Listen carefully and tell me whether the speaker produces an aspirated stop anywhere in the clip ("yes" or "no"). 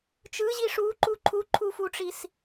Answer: yes